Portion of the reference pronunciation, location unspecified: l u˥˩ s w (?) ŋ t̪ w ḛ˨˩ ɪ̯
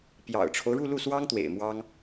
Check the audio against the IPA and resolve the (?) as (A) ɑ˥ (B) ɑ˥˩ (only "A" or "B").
A